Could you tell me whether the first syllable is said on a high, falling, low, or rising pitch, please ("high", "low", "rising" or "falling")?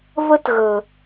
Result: high